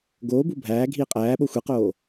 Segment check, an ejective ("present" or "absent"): present